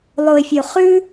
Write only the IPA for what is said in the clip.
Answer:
lˠ o˨ ɪ̯ fʲ o˨ χ ʉ˦

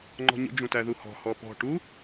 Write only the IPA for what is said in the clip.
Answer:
ŋ͡ǃ ɔ̤ ɲ ə̰ d͡ʒ ũ t æ ð u h ɔ̤ h ɔ p ɔ̤ ʈ u

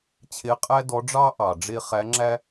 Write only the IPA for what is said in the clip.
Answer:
t͡ɕʰ e˧˥ qʼ æ˥ d ɔ˧˥ ɖ͡ʐ ɑ˥ ʔ ɑ˩ ɖ͡ʐ e˥ χ æ˧˥ ŋ͡ǁ æ˥

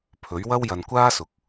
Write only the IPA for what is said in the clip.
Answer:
pʰ ɵ˨˥ ɥ w ɐ˥ w j ɐ˧ n kʷ aː˥ s ʊ˨˥ k̚

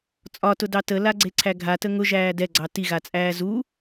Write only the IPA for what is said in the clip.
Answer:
t͡sʼ ɒ t ʊ d ɑ t ə l a ɡ͡ǀ e ǀʰ æ ɡʱ a t ə ŋ ʊ ʒ æː d ɛ ɡ͡ǀ ɑ t i ɣ a t͡sʼ æː z u

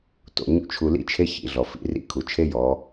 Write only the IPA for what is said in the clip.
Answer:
t o̰˩ ɲ ṵ˥ t͡ʃʰ u˧ l ḭ˥ t͡ʃʰ e˥ ç ḭ˩˧ ɮ ɔ˩ f ḭ˩˧ r ḭ˧˥ kʰ u˩ t͡ʃʰ e˥ j ɔ˩˧

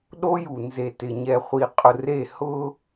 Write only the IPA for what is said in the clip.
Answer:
ɗ o˦ j u˨ n z e˨ t ɪ˨ ɲ ɛ˨ χʷ i˨ qʼ ʊ˨ r e˦˨ h ʊ˦

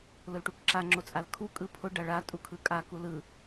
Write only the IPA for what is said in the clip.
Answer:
l ʊ l ʈ u k ǁ a ŋ͡ǁ o t͡sʼ a l kʰ u kʼ ɯ pʰ ʊ ɖ a ɭ a tʼ u kʰ ɯ kʼ a k u l ɯ

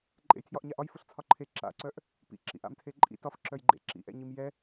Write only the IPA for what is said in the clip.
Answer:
ǃʼ ḛ j tʰ j ɒ ʔ ɲ a ʔ ɒ j f ʊ ɬ t͡sʰ ɒ ǃʰ e ǁ a̰ ǀ œ ʔ | p ḭ ǁ ḭ ʔ a̰ m tʰ e ǃʼ ḭ t ɒ f ǁ œ j ɡ͡ǃ ḛ ǁ ḭ ʔ ɛ̰ ɲ i m j ɛ

